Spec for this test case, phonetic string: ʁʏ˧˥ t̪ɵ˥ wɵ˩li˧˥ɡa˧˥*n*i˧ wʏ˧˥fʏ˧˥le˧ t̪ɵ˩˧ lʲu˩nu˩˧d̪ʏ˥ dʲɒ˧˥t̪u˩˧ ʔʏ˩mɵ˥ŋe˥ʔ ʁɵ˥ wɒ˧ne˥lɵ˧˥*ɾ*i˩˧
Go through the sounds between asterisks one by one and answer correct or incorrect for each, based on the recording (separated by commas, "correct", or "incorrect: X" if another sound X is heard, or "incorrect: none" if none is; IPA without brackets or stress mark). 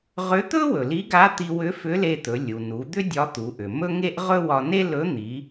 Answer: incorrect: t̪, incorrect: n̪